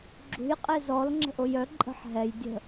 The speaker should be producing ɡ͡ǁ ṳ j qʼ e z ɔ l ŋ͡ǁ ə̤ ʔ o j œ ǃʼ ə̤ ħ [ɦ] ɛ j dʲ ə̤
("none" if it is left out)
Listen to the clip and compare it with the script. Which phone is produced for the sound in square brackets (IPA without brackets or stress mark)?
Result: ɦ